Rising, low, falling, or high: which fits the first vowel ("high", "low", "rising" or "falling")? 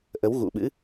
rising